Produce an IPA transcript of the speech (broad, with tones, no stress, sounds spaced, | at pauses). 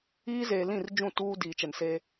iː˦ z eː˨ l ĩ˦˨ r d͡ʒ ũ˦˨ t uː˦ d iː˨ t͡ʃ ɛ˨ n s e˦